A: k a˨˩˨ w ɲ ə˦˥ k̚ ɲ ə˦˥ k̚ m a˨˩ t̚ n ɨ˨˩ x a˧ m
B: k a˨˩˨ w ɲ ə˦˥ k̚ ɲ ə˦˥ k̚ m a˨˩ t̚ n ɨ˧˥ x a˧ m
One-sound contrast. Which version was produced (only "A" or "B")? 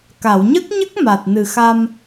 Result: A